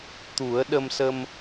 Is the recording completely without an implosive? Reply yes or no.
no